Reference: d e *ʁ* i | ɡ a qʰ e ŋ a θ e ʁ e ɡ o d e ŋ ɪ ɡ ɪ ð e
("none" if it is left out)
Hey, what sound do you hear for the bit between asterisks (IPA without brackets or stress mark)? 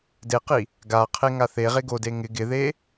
q